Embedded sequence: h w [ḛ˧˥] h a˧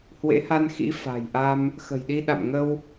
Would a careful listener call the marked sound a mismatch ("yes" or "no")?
no